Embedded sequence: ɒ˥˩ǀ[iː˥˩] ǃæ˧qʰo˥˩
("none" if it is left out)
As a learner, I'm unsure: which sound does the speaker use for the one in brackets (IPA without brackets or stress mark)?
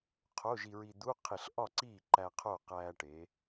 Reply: iː˥˩